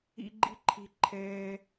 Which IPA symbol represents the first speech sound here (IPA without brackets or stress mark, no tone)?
ḭ